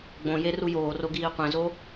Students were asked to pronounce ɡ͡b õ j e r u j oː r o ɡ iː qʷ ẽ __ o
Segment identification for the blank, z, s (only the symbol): z